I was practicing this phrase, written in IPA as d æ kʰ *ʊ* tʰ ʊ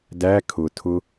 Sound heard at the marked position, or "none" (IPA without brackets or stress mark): ʊ